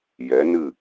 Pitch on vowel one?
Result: rising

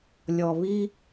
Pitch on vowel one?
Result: low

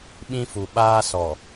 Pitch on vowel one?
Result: high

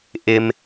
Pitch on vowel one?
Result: high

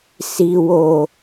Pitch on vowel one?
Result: low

